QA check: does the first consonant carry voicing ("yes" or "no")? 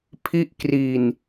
no